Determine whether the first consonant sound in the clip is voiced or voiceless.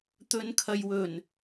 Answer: voiceless